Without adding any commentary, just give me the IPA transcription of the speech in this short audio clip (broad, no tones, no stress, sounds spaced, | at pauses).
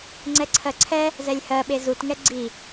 ŋ͡ǀ ɛ ǀʰ ɜ ǀʰ ɛ | z ɛ lʲ h ɜ ɓ e z u t ŋ ɛ ɡ͡ǀ i